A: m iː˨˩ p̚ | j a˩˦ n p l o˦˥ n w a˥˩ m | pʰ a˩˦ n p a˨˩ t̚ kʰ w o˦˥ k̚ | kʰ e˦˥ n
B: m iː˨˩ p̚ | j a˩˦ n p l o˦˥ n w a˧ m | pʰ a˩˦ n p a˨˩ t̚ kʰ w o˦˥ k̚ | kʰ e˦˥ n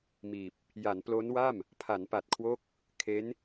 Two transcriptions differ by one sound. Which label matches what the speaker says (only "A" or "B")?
A